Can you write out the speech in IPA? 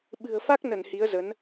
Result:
ɓ ɨ̤˨˩ ə̯ f a˦˥ k̚ n ə˧˩ n h i˨˦ ə̯ z ə˨˦ n

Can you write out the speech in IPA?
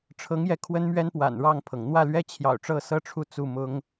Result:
ʈ͡ʂʰ ɤ˧˥ ŋ j ɛ˧˥ kʰ w ə˥ n m ɥ ɛ˥ n p w a̰˨˩ n ɻ ɑ˥˩ ŋ pʰ ɤ˩ ŋ n̪ w ä˥˩ l ɥ ɛ˥ t͡ɕʰ j ɑ̰˨˩ ʊ̯ ʈ͡ʂ ɤ˥˩ s ɤ˥ ʈ͡ʂʰ u˥˧ t͡s u˥˩ m ʊ˥ ŋ

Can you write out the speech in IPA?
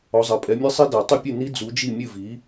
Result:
ɔ˩˥ zˤ ɐ˩˥ pʼ ɛ˩˥ mʲ ɘ˦˥ sˤ i˦˥ d ɐ˨˩˦ tˤ ɘ˥˩ pʲ ɨ˥˩ n i˦˥ d͡z u˩˥ d͡ʒ i˥˩ mʲ ɨ˥˩ v i˩˥

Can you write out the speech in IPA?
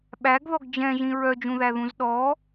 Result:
ɓ æ ɡ ð ɔ ɡ d͡ʒ ɛ̃ ʒ ĩ ɹ œ d͡ʒ ũ ð æ ð ũ z ɗ ɔ

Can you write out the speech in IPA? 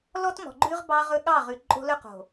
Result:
l ɔ˦ t m ɔ̤˨ ɡ͡ǃ ʉ˦ ʁ b ɑ˦ ʁ ɵ˦ ɠ ɑ˦˨ ʁ ʉ˨ ǃʼ o̤˦ l ɵ˦ q o̤˨

